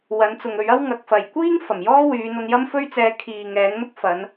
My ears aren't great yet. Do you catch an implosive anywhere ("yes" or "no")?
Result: no